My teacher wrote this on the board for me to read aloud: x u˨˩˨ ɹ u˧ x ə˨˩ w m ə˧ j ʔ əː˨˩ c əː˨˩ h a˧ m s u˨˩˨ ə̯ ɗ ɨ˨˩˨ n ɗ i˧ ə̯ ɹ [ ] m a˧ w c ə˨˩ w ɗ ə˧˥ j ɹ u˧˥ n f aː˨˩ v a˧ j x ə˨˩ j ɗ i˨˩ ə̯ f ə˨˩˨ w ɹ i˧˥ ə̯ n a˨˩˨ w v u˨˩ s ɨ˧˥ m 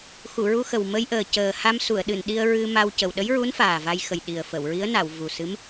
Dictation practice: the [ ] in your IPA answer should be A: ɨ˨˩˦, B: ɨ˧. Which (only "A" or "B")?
B